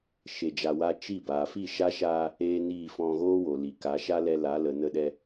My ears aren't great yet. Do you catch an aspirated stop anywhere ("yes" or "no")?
no